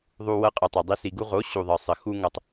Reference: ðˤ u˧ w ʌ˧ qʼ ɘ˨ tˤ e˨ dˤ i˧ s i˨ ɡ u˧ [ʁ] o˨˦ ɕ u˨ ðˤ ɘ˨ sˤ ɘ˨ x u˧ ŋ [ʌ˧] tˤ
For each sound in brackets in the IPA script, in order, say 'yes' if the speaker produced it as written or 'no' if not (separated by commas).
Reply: yes, yes